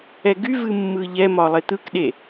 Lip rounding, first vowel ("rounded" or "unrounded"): unrounded